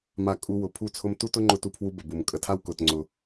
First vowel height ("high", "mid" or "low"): low